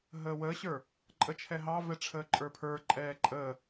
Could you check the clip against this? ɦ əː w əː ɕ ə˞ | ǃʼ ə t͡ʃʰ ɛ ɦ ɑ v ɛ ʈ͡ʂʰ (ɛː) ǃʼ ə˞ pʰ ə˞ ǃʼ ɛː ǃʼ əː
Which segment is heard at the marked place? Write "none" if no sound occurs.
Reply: əː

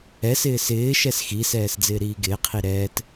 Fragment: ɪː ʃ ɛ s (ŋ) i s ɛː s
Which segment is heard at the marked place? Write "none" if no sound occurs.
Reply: x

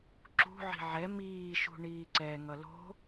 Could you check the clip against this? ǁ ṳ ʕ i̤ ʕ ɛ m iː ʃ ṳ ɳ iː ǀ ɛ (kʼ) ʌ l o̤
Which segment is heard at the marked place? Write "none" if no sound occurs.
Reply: ŋ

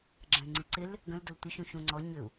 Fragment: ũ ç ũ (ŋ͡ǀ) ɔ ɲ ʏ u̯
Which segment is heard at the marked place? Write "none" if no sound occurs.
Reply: ŋ͡ǀ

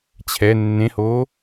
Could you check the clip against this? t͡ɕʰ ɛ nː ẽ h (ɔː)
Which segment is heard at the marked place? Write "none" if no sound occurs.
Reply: oː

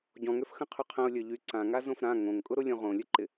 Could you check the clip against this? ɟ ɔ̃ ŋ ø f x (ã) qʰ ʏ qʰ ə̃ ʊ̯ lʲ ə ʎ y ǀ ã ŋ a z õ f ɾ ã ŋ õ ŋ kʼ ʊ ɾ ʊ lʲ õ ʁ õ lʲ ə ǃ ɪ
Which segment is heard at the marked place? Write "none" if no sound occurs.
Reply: ə̃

